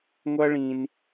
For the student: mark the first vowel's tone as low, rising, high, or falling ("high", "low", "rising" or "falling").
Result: high